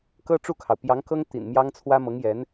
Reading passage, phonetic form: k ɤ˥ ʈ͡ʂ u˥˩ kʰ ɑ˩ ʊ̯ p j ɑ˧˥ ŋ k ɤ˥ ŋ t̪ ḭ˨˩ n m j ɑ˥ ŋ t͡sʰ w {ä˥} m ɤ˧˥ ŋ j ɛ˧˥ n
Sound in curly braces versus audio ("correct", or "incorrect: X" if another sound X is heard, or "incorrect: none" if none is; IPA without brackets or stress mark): correct